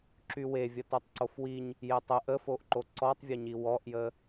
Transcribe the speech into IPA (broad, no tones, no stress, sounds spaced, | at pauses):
ǁ y w e vʲ ə t o tˤ ǀ o f w i ɲ | j e tˤ ə ʔ ə f o ʔ ǃ o ǀ ɔ tˤ vʲ ə ɲ i w ɔ ʔ j ə